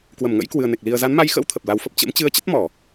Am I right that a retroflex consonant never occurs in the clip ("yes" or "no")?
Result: yes